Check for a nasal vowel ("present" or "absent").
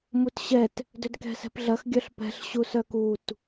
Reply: absent